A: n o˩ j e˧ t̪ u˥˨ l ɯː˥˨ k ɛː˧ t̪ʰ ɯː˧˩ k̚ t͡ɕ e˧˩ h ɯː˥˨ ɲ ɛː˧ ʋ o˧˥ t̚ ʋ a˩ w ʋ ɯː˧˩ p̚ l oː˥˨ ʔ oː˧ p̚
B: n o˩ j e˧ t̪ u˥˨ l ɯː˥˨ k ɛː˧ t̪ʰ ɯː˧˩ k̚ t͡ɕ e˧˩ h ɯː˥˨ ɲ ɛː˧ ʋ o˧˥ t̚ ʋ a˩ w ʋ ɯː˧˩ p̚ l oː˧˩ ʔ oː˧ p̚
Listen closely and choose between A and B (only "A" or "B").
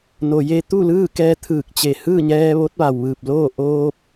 A